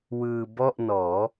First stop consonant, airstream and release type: plain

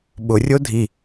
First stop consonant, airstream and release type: implosive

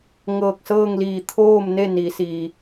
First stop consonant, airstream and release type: plain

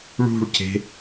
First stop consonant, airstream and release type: plain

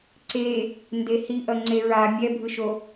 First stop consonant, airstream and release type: click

